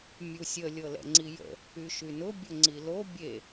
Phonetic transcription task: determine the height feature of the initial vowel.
high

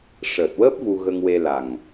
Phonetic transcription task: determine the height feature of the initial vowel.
mid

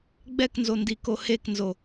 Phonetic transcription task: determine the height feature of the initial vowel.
mid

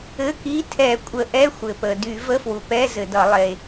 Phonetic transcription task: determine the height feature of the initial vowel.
mid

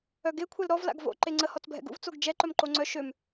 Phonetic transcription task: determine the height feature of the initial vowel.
mid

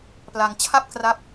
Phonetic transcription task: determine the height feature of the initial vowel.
low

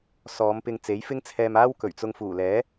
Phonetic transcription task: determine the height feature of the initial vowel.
mid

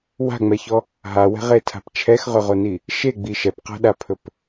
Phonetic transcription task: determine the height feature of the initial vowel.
low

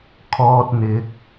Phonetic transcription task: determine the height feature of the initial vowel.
mid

